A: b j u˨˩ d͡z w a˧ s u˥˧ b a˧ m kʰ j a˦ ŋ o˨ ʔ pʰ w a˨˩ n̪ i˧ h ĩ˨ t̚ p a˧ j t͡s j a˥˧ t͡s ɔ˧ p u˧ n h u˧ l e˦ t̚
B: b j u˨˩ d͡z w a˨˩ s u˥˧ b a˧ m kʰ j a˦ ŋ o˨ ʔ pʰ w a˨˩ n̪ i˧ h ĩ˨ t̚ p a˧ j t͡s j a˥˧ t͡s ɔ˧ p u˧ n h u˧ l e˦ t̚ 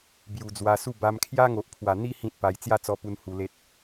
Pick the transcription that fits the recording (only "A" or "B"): A